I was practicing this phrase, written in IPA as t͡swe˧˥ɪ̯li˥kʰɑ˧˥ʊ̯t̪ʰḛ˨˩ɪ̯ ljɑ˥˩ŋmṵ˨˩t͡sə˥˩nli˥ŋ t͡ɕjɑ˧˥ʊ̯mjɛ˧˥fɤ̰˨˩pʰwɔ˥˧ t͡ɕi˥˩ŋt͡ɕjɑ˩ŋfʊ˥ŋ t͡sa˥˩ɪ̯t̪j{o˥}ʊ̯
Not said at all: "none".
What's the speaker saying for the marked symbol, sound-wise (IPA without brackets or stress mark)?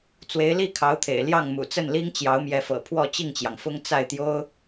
o˥